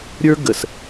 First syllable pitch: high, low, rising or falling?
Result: high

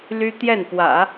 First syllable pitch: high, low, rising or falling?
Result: high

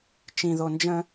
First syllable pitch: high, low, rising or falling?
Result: low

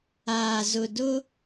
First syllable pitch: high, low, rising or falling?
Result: low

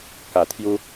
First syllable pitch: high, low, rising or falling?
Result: low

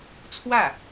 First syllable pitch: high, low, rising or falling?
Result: falling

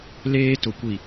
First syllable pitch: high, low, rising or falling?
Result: high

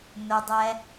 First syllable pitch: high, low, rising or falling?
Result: low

